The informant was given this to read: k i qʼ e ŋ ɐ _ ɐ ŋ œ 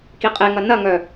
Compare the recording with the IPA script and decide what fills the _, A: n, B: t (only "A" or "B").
A